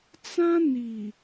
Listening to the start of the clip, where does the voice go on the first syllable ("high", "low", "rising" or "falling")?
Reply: high